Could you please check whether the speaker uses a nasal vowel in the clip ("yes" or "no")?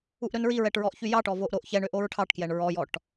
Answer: no